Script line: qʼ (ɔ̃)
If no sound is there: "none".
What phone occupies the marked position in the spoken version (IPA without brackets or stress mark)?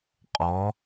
ɔ